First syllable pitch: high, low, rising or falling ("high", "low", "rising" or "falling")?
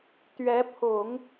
rising